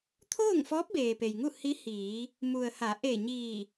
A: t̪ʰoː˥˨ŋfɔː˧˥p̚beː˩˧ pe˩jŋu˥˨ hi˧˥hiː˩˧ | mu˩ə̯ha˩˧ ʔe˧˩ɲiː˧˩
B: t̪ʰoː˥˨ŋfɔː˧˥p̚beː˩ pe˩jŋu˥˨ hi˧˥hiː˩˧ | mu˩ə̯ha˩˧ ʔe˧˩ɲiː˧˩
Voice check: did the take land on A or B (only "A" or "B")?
B